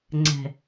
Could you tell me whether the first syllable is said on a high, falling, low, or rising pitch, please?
low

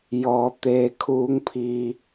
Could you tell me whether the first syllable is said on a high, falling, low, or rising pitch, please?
low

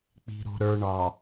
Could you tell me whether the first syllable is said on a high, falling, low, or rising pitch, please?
low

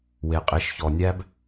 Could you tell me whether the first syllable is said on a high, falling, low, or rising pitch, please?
low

